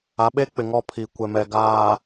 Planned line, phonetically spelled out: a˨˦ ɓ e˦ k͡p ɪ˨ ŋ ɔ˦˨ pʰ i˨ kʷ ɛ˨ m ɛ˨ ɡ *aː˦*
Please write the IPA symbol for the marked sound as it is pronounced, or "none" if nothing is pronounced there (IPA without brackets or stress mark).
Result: aː˨